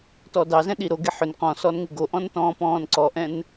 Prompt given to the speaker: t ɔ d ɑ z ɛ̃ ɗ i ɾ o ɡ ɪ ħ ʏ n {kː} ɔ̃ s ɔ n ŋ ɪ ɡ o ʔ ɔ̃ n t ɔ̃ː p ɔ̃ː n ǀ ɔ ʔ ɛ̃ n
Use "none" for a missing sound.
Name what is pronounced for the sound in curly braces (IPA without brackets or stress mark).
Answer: q